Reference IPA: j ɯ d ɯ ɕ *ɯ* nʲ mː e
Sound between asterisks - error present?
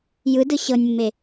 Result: yes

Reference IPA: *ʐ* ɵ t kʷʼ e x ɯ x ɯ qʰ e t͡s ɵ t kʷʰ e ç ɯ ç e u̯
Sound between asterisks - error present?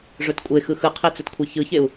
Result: no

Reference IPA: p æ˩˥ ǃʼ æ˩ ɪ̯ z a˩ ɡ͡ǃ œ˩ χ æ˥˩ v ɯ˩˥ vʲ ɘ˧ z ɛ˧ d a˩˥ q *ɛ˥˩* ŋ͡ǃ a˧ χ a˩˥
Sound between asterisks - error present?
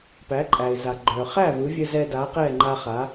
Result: no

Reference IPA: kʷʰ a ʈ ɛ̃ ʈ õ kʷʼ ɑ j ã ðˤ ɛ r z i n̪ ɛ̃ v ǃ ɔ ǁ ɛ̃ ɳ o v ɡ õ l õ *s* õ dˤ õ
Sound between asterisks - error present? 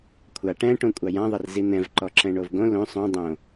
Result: yes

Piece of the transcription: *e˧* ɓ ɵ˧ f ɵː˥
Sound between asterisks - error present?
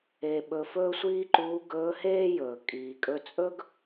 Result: no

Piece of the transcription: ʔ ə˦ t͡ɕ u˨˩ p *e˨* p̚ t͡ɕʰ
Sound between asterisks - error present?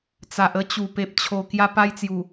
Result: no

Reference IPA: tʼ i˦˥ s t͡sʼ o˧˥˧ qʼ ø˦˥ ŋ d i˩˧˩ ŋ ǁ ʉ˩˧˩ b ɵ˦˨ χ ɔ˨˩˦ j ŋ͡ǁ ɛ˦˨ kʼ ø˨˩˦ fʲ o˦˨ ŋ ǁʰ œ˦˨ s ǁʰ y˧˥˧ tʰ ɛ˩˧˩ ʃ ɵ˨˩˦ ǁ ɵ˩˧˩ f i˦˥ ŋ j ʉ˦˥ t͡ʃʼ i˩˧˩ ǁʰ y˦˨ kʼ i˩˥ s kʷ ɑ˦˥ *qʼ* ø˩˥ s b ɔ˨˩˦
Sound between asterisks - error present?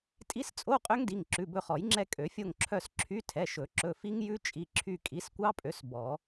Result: yes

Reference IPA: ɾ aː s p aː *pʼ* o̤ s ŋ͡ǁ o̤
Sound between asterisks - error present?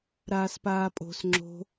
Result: no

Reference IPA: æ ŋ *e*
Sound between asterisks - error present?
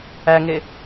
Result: no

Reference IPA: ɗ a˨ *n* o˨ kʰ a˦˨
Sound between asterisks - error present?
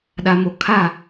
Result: yes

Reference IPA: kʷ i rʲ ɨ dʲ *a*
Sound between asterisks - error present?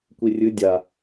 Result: no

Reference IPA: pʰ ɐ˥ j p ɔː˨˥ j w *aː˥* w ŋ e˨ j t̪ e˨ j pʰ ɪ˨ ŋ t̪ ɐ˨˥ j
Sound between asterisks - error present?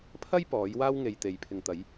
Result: no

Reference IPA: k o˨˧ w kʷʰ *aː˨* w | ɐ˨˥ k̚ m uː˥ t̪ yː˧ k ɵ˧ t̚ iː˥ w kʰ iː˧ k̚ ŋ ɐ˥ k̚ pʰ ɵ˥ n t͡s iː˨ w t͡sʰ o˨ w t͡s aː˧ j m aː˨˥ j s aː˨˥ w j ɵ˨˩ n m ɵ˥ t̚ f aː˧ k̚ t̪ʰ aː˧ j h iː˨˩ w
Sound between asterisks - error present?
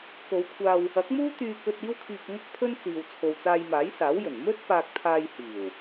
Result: yes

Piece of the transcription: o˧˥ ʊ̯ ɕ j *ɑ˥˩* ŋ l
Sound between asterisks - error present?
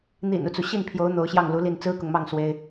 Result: no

